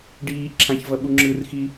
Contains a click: yes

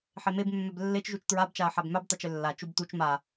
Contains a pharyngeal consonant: yes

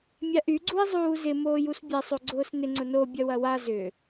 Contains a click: yes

